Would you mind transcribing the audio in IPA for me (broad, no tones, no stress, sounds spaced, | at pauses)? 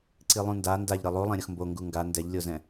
ǀ i lˠ ũ n d a n d a ʎ ɾ ɯ lˠ u lˠ ɛ̃ ɾʲ ʌ x m b o ŋ ɡ u ŋ ɡ a n d ɛ ʎ lʲ o z ɛ̃